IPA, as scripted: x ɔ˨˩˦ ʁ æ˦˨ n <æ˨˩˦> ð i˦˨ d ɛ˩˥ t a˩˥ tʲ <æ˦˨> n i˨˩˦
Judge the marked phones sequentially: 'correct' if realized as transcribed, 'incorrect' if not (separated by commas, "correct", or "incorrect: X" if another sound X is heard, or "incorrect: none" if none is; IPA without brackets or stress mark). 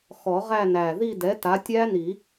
incorrect: æ˨˩, incorrect: æ˦˥